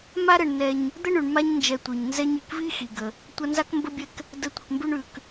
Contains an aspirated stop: no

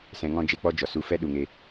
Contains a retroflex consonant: no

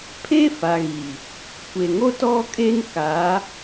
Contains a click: no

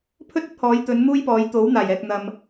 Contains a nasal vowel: no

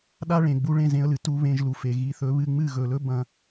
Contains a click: no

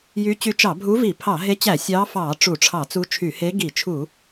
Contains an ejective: no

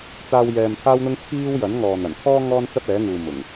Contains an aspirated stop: yes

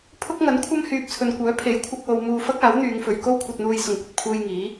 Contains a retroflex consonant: no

